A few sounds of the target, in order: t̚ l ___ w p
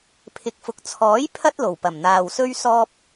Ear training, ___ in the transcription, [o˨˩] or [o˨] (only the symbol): o˨˩